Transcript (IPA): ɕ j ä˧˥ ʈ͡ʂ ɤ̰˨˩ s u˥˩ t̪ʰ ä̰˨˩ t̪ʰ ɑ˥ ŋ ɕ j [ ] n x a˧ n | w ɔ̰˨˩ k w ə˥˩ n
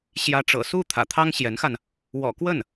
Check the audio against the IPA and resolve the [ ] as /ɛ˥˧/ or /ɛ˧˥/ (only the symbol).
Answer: ɛ˧˥